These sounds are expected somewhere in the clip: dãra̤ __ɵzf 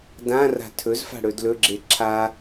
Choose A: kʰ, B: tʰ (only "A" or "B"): B